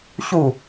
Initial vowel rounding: rounded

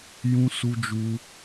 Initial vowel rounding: rounded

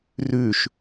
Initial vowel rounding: rounded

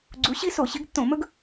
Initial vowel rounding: rounded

